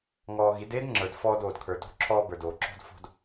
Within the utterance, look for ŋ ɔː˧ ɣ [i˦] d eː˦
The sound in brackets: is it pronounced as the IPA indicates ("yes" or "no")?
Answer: no